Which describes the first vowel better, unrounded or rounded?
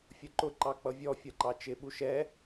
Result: rounded